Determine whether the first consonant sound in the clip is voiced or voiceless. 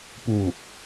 voiceless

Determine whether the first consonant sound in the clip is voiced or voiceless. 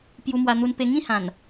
voiceless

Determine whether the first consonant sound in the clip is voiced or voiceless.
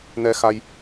voiced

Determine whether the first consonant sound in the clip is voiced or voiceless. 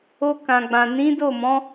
voiceless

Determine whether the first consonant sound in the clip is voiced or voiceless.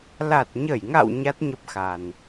voiced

